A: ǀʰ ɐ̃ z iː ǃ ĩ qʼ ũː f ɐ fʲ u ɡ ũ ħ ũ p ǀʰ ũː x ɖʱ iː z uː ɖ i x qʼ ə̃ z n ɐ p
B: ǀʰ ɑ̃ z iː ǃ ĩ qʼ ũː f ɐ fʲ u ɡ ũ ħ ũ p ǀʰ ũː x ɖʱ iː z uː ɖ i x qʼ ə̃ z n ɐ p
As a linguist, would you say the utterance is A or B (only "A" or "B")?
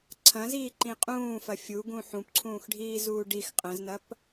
A